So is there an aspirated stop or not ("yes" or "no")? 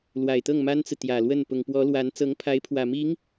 yes